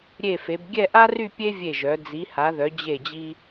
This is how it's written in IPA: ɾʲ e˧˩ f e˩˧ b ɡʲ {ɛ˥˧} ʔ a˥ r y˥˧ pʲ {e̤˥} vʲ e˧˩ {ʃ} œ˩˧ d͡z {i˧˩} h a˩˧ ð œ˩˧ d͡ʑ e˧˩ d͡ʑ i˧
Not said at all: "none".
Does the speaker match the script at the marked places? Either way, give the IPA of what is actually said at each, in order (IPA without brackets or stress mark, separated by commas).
ɛ˥˧, e˥, ʒ, i˩˧